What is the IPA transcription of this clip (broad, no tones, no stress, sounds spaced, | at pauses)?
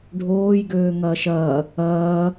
ɖʱ oː j ɡ øː ŋ ɐː ʃ ɐː | ɐː